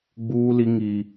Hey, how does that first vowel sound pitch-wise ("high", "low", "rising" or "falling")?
high